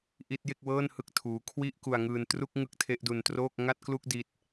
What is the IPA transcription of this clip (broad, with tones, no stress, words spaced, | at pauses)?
ʔi˦˥t̚je˥˩k̚wɤː˥˩nhɯ˦˥k̚ tʰuː˦˥ kʰwi˥˩ʔku˧a̯ŋɯː˧n tru˥˩k̚ ŋɯ˦˥k̚tʰe˦˥ʔdu˧ntroː˥˩k̚ ŋa˥˩t̚klu˥˩k̚ di˦˥t̚